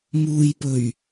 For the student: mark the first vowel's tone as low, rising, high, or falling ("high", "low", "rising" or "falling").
low